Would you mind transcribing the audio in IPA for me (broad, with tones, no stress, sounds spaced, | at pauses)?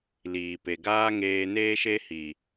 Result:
l iː˨ p e˨ ɡ aː˦ ŋ eː˧ n eː˦ ʃ e˦ h i˨